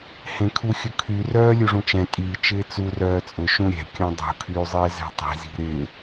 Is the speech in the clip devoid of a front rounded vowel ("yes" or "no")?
no